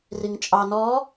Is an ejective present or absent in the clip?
present